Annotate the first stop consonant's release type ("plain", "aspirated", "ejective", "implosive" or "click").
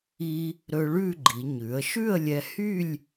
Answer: click